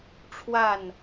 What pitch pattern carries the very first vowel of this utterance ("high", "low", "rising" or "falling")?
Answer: falling